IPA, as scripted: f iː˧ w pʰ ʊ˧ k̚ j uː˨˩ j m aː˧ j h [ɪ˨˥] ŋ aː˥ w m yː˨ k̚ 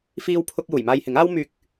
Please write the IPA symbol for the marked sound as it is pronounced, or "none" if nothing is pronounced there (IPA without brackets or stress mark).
ɪ˨˥